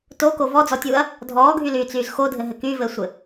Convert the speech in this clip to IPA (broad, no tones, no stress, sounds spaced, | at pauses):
t o k o v ɔ d͡z ɔ tʲ uː ɐ̯ | dʱ ɔː ɡʱ y l yː t͡s yː z x o dʱ ɘ ɦ ɘ k y v ɘ sʷ ɘ